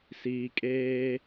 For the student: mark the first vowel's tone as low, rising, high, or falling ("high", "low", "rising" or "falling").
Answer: low